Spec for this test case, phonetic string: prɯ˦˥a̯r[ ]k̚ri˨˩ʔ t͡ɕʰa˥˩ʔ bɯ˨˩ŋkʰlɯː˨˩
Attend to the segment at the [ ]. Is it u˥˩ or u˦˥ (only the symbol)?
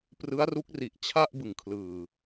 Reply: u˦˥